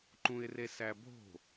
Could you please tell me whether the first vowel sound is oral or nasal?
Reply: nasal